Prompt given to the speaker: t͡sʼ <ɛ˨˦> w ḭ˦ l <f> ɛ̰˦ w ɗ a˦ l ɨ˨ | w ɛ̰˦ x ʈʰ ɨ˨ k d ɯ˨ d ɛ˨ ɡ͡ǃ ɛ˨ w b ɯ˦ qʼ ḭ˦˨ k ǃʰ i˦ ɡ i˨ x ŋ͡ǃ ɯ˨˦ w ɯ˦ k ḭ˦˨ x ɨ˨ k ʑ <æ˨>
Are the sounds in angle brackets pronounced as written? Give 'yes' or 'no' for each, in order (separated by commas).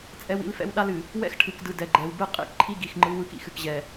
no, yes, no